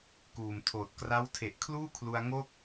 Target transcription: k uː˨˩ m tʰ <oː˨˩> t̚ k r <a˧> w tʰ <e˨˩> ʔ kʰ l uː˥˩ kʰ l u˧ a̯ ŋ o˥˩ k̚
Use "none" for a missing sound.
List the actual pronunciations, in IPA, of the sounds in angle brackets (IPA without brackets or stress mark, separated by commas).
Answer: oː˨˩, a˦˥, e˨˩